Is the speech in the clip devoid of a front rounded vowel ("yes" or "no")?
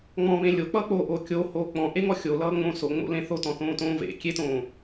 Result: yes